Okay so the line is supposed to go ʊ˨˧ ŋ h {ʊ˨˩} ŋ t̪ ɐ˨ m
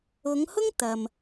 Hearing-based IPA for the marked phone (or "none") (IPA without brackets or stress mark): ʊ˥